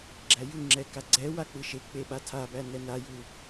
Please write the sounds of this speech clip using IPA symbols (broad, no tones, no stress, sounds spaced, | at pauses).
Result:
ɡ͡ǁ æ j ɯ ŋ͡ǁ ɛ k a ɡ͡ǀ ɛ w a k͡p ɯ ʃ e k͡p e ɓ a tʰ a b æ n ɛ n a j u